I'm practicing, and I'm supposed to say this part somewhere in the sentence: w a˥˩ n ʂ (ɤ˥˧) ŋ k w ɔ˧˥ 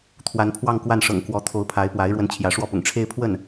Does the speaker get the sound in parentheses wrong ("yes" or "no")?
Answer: yes